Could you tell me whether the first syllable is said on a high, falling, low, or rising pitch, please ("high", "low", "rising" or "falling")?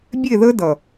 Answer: falling